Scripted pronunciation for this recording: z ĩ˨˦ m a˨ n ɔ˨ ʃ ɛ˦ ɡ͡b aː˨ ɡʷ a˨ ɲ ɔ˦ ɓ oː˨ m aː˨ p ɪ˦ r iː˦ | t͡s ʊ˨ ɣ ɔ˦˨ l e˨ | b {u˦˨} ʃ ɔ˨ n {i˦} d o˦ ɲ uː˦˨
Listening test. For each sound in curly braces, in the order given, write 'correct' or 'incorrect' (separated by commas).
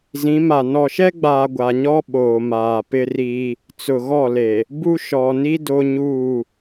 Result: incorrect, correct